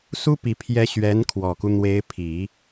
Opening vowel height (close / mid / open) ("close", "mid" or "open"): close